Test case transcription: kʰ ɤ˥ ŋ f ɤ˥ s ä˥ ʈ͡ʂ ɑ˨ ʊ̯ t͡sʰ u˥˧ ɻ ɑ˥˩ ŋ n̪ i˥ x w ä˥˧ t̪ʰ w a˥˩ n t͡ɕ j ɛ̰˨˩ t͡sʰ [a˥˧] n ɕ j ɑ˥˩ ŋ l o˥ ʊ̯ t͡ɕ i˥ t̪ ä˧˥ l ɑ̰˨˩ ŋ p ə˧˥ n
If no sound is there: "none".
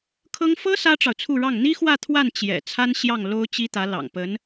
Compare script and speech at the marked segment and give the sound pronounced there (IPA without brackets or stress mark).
a˥